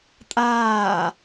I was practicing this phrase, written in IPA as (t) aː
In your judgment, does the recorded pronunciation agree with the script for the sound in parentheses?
no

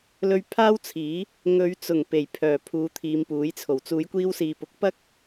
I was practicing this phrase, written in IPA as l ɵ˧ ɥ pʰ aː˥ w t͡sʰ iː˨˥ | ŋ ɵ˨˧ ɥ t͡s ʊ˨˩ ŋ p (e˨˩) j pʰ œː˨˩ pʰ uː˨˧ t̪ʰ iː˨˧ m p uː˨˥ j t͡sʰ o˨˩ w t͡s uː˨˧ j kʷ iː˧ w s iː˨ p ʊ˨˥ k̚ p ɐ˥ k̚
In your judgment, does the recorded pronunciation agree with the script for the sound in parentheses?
yes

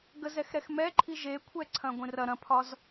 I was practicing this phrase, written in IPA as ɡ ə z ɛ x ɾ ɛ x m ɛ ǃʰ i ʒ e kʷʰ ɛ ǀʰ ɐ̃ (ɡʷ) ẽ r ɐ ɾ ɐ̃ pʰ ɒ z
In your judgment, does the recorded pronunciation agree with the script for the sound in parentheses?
yes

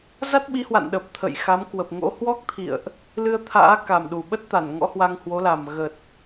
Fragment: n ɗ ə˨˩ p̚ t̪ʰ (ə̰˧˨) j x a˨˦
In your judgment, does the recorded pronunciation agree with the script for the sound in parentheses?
yes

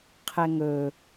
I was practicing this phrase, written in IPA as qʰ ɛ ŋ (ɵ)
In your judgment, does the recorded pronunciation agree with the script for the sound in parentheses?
yes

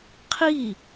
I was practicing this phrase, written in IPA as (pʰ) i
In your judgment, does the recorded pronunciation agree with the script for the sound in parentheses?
no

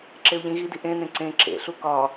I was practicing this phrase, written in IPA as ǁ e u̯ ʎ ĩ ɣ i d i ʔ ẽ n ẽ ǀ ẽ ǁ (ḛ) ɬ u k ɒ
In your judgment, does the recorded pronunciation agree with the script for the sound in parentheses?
yes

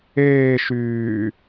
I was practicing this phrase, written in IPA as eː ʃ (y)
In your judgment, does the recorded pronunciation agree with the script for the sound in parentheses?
no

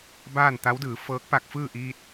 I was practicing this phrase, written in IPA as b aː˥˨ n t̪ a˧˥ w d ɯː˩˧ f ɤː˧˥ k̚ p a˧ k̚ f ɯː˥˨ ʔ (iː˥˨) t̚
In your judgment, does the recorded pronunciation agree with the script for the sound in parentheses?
no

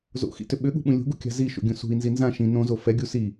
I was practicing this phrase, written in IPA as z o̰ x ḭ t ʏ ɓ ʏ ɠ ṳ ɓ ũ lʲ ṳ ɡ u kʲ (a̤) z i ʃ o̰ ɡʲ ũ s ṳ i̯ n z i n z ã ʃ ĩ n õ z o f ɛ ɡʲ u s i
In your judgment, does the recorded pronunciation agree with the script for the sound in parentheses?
yes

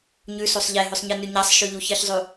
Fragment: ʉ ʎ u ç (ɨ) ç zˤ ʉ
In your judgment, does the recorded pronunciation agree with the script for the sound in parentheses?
yes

